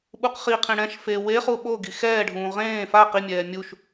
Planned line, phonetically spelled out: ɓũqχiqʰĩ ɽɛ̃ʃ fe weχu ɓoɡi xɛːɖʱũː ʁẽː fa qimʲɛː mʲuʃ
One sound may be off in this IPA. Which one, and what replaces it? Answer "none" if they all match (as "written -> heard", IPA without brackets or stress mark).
ũ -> u